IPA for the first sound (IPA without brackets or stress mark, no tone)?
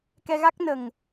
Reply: k